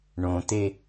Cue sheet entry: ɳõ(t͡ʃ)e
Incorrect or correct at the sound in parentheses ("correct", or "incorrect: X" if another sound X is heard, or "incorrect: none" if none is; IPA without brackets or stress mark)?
incorrect: t̪